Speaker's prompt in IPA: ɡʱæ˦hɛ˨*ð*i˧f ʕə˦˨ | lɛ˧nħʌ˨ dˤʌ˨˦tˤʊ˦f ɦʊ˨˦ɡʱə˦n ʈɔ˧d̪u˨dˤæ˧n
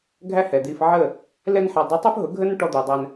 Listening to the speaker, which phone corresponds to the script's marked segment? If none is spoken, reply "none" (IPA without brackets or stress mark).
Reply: d̪